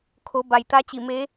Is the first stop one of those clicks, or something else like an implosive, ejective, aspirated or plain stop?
aspirated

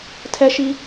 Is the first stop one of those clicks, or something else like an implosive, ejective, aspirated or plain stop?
aspirated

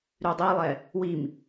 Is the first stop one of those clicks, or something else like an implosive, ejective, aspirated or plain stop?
plain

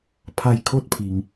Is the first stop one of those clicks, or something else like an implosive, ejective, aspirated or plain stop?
aspirated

